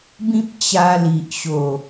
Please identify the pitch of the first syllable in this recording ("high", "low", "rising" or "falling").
high